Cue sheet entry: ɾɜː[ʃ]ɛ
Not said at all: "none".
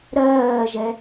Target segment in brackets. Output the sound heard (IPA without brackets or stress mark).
ʒ